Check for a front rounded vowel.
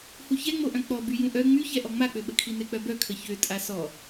present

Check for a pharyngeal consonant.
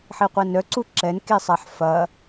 present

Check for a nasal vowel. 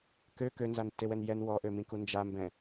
present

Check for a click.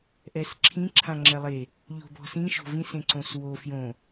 present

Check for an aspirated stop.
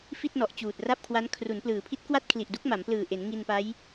present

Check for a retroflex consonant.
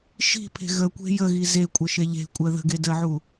absent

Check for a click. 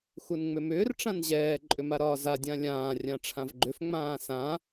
present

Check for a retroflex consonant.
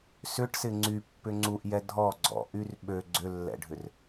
present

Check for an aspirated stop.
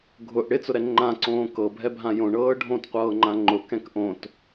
absent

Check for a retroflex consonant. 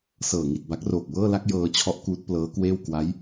absent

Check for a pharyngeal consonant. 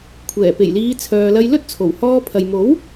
absent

